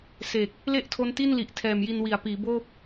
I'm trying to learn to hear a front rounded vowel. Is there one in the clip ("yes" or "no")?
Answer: no